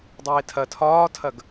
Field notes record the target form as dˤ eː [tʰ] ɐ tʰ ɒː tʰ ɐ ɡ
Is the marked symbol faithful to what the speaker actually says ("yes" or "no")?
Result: yes